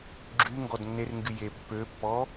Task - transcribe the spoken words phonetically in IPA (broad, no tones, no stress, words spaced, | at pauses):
ɡ͡ǁy ŋɡɔdnːerŋɡy jepːøpːɔ